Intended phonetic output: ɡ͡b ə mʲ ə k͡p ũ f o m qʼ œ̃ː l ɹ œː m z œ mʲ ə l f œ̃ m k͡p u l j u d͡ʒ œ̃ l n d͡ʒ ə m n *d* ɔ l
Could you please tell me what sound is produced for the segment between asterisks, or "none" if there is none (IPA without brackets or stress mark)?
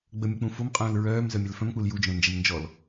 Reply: d͡ʒ